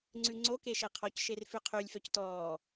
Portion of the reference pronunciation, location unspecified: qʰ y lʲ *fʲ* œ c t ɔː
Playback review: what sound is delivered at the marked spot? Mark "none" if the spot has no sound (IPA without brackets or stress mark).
f